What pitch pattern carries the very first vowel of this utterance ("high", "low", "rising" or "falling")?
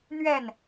falling